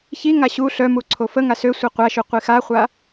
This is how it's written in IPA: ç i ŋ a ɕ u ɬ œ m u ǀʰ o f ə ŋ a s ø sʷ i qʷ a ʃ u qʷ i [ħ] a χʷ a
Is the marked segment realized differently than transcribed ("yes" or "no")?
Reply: yes